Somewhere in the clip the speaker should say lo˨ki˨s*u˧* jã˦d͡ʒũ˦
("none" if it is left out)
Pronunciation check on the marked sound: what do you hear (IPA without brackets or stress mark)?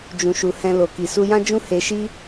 u˧